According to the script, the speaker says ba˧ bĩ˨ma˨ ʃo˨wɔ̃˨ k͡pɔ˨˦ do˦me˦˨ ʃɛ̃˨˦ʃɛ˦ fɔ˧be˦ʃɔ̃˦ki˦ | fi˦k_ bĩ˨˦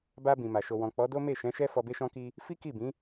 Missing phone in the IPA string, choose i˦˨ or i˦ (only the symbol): i˦˨